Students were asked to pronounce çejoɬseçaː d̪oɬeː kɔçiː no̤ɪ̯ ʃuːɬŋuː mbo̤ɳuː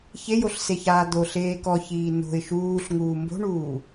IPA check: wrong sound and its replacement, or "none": none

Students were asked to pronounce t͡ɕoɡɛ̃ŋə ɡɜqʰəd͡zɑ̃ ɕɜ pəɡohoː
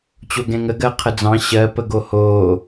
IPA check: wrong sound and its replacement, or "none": none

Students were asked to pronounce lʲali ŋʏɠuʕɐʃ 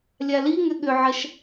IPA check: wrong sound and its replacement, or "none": u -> ʏ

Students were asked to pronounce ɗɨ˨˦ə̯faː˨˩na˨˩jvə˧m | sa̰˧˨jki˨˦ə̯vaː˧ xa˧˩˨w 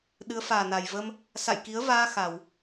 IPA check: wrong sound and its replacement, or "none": none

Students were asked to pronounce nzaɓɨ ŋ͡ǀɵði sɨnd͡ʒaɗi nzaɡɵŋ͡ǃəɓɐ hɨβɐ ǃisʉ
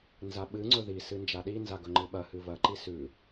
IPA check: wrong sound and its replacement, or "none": ə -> ɨ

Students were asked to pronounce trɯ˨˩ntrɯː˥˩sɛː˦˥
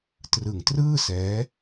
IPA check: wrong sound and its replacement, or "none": n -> ŋ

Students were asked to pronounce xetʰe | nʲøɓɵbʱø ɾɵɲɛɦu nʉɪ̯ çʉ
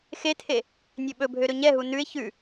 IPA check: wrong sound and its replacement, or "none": none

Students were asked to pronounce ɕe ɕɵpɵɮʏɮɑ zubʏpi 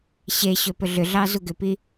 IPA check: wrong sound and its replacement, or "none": b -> ɡ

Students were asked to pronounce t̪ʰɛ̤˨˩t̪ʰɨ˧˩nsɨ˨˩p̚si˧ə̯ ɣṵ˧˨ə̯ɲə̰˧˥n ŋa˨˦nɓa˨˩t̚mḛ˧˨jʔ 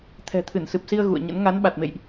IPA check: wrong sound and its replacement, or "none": none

